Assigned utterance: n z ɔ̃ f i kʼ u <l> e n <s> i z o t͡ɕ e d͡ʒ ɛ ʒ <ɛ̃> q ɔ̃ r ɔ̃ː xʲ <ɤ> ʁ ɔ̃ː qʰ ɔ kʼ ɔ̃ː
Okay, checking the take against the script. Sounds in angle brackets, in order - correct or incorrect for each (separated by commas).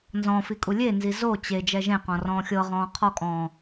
incorrect, incorrect, incorrect, correct